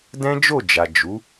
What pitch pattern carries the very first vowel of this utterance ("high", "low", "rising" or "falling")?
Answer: high